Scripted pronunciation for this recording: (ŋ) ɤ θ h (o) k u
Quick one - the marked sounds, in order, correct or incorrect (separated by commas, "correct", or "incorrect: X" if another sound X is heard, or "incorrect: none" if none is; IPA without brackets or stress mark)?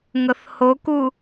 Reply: correct, correct